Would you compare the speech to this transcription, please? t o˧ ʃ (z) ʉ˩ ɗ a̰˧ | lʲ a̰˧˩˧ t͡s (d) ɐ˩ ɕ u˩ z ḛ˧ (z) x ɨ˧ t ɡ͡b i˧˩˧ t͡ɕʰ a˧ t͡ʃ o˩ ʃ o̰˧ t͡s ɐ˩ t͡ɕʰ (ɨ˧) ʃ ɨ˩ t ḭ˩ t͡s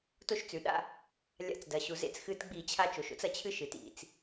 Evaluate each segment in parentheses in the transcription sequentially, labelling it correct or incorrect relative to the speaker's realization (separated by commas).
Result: incorrect, correct, incorrect, correct